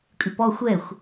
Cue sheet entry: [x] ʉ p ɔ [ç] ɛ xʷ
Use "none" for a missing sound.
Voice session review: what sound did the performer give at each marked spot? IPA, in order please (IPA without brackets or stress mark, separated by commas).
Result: kʼ, xʷ